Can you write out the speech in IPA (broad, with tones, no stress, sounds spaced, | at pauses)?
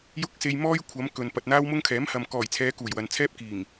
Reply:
j ʊ˥ k̚ s e˧ j m ɔː˥ j kʷʰ ɐ˨˧ m k ɵ˨ n p ɐ˨ t̚ n̪ aː˥ w m ʊ˥ ŋ kʰ ɛː˨˥ m h ɐ˨ m k ɔː˨˩ j t͡sʰ ɛː˨˧ k uː˨˩ j w ɐ˨ n t͡sʰ ɛː˥ p̚ k iː˨˩ ŋ